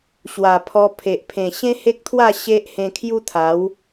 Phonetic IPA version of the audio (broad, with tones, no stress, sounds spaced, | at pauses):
ɕ w a˨˩ pʰ ɔ˧ pʰ e˨ ʔ pʰ ẽ˨˩ ɕ ẽ˦ h e˦ k̚ t̪ʰ w a˥˧ ɕ e˦ ʔ h ẽ˧ kʰ j u˦ t̪ʰ a˨˦ w